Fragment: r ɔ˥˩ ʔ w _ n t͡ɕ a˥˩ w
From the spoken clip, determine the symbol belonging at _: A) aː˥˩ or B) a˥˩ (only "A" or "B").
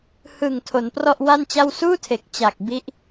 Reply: B